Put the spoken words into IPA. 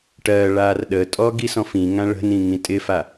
ʈɜɭar ɗətʼɔ ɡisɔ̃fĩŋã ɭə̤nĩ ŋĩtʼɪfa

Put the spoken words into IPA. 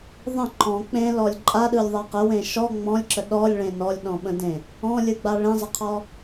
ðˤə̃ ǃɔ̃ k͡pẽlɔlʲ ǃʼaɗɯlʲðˤa qəwẽ ʃɔ ŋ͡mɔ̃lʲǁə ɗɔlʲɭẽ nɔlʲɗɔ̃ɓə̃dẽ | ɔ̃lʲɯɡ͡ba ɭẽzˤəqʰɔ

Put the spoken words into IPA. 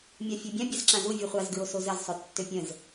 mʲafʲøbʲã bʲasǁãzu vʲuχʷaz ɡɹosozəz sˤøtːøpʲə̃z

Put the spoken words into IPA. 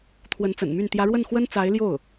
t̪ʰwə˧˥nt͡sə̰˨˩nmy˥˩n t̪jä˧˥ɻwə˥˩nxwə˥n t͡sa˧˥ɪ̯ljo˥˩ʊ̯

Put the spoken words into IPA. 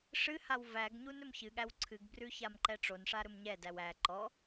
ʂɨhaw væɡɲun ɵmçɨɠæw ǀʰɨɡbrʉ çamǃɛʈ͡ʂonʂa ɾɵmɲɛdæw æ ǃɔ

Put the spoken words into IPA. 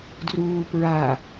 druːpɹa

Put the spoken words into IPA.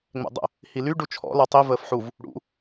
ŋ͡mɛ̰dˤə̰ | hily ɖut͡ʃʰɔ̰ lɔtˤi vəːfħuv | ɽṵ

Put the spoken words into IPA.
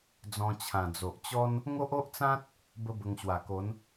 d͡zɔ̃˧t͡ɕʰã˨˩d͡zo˨ʔ t͡ɕɔ˦n | ŋo˦ʔo˦ʔt͡sã˦t̚ | bə˦bə˧ŋɕwa˨˩ko˨˦n

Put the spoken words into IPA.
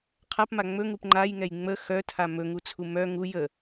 qʰapma ŋ͡mɵŋup ŋ͡ǃajŋɛj ŋ͡mə xœtʰa mɵŋut͡sʰu mœ ŋu jə

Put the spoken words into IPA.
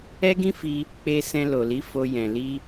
ɛ˦ɡĩ˦fi˧ | k͡pe˧sɛ̃˧lo˨li˨˦ fo˧ jɛ̃˨ li˧

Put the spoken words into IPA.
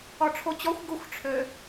ɔʈ͡ʂʰot͡ɕɔxʷ ɡʊxʷʈ͡ʂʰø

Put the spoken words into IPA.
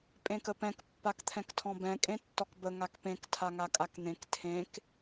pʼẽkəpɛ̃k pːakt̪ʰɛ̃ktʰɔ̃bɛ̃ kʼẽtːɔkbə ŋakpẽk tʰaŋakʼakn̪ẽk tʰẽk

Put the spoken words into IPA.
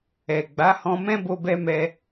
ɛ˨ ɡ͡ba˨˦hɔ̃˧mɛ̃˦bo˧ bɛ˧mɛ˧

